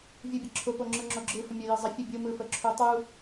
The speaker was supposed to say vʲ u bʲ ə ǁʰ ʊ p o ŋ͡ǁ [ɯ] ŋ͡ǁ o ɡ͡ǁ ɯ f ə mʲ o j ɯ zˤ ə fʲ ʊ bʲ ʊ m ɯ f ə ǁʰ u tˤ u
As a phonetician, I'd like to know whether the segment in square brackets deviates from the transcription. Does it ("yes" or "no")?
no